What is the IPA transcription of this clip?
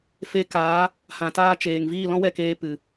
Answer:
f e˧ k aː˨˦ | h ã˨ t aː˧ t͡ʃ eː˨ ŋ v iː˦˨ l ɔ̃˦ w ɛ˦˨ k eː˧ p ɨ˨

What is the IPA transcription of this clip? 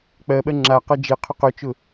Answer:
k͡p ɜ ɓ ɜ ŋ͡ǁ a q ʌ d͡ʒ e qʰ ʊ q ɵ t͡ʃ ʊ

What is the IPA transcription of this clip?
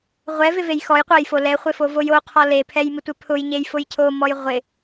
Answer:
ʁʷ ɛ v ɪ v e j x ɔ j qʷ a j f o l ɛ χʷ ɪ f o v o j o qʰ ɔ l e pʰ ɛ j m ɪ tʷ e pʰ ʊ j ɲ e j f ʊ j cʰ o m ɔ j ʁʷ ɪ

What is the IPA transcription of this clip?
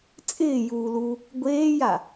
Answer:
t͡sʼ ɪː j uː l u | ɡʷ eː j a

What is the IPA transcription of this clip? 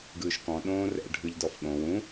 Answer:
ɡ ɯː ʃ k ɔ̃ ɗ õː r ɛ̰ ɖʱ ɯ ʎ d ɔ f ɠ õ w ũ

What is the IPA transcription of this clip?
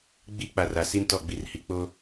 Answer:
ɡ͡b i˦ k͡p a˨ r a˨ s i˦ n t ɔ˦˨ ɡ͡b i˨ r h i˨ k͡p oː˦

